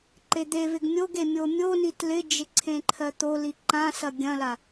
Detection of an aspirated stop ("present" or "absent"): present